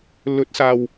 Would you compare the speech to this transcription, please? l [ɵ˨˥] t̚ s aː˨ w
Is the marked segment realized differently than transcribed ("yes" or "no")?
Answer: no